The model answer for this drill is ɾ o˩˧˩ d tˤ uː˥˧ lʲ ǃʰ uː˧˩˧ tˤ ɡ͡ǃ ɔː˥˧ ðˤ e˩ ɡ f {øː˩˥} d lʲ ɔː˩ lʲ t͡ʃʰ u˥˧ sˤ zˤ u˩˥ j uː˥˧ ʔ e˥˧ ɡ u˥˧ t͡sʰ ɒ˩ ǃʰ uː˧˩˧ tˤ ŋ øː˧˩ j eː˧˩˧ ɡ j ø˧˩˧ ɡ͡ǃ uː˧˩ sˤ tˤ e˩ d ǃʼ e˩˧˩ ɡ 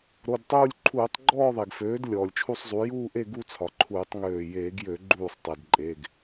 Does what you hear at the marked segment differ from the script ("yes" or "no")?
no